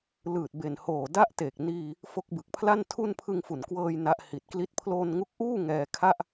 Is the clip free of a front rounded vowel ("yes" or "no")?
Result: yes